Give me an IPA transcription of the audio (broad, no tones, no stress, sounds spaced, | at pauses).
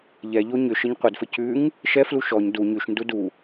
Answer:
ʎ ɛ ʎ o ɲ ʏ ʃ ɘ ɲ qʷ ɘ d f ɘ c ʉ ŋ | ʃ ɛ f l u ʃ ɔ ɲ d u ɲ ʉ ʃ n d u d u